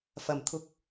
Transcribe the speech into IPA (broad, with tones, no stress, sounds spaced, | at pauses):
f ɐ˨˩ m t̪ʰ ʊ˧ k̚